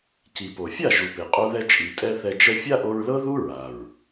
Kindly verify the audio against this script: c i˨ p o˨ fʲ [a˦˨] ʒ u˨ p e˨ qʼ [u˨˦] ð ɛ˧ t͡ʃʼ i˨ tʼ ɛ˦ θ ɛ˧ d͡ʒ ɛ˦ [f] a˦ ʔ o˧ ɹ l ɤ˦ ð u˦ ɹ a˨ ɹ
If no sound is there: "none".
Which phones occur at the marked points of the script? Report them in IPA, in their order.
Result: a˦˨, u˧, fʲ

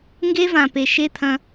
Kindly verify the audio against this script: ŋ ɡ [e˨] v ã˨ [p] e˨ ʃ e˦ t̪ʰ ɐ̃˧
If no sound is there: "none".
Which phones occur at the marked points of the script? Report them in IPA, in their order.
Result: e˦, p

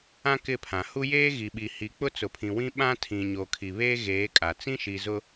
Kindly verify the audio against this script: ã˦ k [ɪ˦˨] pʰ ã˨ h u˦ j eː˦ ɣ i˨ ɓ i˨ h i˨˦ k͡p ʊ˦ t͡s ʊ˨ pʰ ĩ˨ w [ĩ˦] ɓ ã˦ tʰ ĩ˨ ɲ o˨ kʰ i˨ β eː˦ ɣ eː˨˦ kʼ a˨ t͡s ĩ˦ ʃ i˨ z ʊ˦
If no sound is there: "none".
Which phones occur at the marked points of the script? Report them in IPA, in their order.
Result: ɪ˦˨, ĩ˦

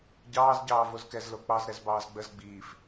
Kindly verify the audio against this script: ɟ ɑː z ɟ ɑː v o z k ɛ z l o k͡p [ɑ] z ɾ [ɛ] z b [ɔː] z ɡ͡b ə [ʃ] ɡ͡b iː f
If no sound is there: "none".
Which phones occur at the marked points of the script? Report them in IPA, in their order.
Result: ɑ, ɛ, ɑː, z

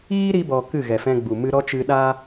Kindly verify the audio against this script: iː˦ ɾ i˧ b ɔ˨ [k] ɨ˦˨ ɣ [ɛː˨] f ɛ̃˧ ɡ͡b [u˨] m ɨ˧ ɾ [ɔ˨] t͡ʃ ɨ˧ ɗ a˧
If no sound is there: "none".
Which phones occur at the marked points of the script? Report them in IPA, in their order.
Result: k, ɛ˨, u˨, ɔ˦

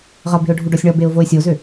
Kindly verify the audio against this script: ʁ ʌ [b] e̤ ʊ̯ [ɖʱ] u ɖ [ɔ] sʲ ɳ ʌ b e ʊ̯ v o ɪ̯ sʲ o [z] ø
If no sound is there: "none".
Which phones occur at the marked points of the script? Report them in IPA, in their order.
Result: b, ɖʱ, ɔ, z

